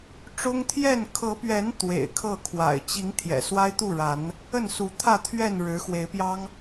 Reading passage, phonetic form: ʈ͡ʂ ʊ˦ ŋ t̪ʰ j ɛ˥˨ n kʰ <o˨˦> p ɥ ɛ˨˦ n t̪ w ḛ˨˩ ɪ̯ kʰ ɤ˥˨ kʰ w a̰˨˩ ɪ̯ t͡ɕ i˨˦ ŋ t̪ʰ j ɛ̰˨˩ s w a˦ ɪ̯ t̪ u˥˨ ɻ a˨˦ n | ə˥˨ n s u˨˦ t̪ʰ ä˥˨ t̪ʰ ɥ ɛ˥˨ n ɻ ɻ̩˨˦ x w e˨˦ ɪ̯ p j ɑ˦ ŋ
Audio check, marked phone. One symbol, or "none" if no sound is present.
ɤ˨˦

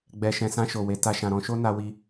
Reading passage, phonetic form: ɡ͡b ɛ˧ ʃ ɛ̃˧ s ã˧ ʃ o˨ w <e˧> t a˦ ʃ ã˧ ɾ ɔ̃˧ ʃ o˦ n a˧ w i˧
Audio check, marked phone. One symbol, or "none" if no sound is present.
e˧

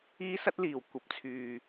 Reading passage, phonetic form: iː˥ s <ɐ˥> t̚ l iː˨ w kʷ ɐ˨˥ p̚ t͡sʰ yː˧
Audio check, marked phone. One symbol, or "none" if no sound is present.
ɐ˥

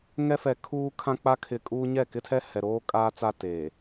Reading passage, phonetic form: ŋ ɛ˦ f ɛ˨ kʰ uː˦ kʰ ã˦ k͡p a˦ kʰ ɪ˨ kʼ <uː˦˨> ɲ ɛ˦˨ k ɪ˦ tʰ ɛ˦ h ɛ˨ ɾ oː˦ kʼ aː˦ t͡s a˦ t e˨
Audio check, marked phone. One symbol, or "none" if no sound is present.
uː˦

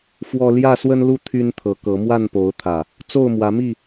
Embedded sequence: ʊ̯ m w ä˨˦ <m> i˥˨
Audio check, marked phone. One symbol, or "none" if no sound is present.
m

